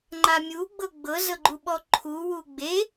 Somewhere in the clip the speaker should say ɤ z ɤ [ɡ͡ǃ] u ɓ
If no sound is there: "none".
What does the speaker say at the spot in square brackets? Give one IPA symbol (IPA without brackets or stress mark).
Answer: ɡ͡ǃ